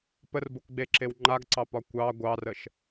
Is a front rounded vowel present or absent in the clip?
absent